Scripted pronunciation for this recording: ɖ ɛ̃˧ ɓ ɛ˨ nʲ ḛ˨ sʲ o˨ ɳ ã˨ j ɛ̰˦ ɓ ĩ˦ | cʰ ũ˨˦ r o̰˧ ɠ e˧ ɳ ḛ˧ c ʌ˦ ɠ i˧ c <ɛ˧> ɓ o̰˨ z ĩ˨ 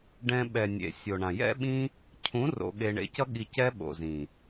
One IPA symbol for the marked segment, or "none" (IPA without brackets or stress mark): ɛ˦